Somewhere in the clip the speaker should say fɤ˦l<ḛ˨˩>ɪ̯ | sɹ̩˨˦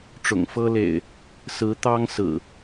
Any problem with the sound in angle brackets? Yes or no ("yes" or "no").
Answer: no